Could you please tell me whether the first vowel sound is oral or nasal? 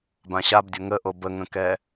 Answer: nasal